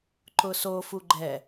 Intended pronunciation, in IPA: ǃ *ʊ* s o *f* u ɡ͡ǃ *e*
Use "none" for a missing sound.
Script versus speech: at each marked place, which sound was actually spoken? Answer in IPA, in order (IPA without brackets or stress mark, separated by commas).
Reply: ʊ, f, ɛ